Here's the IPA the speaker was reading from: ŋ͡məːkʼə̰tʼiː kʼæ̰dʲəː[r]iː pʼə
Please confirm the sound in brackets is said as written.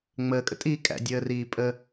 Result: yes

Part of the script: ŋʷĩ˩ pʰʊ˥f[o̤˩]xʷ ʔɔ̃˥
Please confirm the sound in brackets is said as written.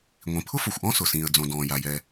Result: no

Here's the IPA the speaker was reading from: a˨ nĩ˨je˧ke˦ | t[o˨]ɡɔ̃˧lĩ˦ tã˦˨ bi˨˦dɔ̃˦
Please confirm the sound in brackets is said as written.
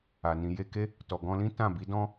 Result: no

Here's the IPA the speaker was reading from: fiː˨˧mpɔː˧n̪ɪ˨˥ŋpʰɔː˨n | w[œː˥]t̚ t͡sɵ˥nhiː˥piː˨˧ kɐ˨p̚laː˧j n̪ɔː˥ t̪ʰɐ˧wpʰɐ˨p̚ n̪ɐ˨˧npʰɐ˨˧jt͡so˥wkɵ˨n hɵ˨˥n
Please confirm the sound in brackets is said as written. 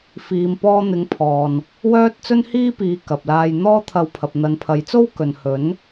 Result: yes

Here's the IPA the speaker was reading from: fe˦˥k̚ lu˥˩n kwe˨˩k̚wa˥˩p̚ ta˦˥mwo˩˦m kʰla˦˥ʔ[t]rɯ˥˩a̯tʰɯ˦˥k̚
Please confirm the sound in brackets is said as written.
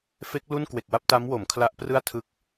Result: no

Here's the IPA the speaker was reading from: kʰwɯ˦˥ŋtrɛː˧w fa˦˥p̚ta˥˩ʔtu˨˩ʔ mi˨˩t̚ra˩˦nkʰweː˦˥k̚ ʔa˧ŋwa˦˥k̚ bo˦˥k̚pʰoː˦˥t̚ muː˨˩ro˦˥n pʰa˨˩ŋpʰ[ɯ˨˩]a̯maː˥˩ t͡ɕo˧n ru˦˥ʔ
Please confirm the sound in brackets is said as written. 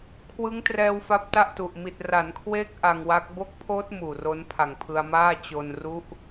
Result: no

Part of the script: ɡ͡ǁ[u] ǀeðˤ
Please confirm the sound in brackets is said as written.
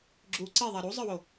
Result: yes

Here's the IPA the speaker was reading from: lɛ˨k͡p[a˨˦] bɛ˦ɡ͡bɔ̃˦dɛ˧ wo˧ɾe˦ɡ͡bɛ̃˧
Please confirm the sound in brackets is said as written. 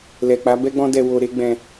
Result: yes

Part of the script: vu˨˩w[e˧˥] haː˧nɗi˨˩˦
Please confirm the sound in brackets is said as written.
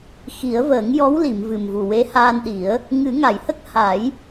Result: yes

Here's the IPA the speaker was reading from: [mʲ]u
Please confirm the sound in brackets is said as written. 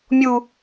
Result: yes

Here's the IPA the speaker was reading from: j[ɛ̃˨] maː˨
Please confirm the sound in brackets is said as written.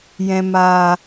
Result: yes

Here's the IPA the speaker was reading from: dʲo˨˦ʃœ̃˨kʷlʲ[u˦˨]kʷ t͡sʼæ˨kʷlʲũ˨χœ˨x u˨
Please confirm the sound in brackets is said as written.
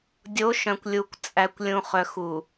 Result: no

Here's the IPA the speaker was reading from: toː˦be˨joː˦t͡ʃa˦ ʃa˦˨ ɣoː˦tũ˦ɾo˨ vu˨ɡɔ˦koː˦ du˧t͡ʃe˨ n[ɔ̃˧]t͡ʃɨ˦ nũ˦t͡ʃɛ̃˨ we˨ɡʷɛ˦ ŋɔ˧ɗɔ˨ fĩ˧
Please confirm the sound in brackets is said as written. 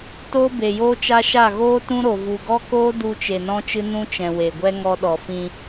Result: no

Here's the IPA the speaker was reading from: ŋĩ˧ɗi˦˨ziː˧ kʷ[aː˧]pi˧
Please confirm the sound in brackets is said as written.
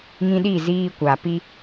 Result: no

